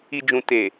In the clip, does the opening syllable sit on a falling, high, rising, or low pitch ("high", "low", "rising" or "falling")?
low